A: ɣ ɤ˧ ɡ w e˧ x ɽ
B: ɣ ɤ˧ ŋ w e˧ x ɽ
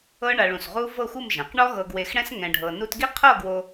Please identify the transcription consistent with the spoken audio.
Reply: A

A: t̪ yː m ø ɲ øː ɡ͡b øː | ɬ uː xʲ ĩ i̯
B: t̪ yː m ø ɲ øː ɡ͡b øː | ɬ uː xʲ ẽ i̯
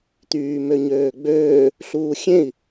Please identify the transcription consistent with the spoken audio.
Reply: B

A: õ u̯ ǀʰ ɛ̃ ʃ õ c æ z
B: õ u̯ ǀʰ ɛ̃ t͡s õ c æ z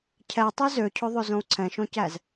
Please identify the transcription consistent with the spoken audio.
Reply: A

